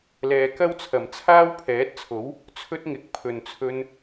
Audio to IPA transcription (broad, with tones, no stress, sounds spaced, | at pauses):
l ɛː˨ k ɐ˥ w t͡sʰ ɐ˨˩ m t͡sʰ aː˥ w pʰ ɛː˨˥ t̚ t͡sʰ o˨˥ w | t͡sʰ ɵ˥ t̚ ŋ ɪ˨˥ k̚ pʰ ɵ˨ n t͡sʰ ɵ˧ n